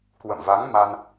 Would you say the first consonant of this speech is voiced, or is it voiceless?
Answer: voiceless